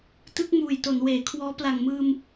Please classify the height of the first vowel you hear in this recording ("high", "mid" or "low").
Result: high